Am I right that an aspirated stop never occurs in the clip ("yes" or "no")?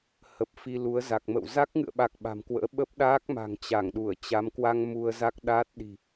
yes